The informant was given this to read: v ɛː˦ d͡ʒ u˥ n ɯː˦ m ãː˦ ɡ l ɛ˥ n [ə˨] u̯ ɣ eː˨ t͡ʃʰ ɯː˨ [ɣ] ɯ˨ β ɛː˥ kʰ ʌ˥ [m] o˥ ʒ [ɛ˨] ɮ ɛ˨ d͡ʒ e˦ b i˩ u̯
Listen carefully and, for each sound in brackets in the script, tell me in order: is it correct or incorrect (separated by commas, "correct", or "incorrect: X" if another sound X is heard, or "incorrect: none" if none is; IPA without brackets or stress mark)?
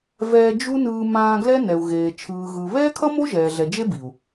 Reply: incorrect: ɛ˨, correct, correct, incorrect: ɛː˨